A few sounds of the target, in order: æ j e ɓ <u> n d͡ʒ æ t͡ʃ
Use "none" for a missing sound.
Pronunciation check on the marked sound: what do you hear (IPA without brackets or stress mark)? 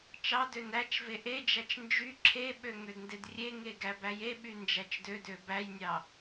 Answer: y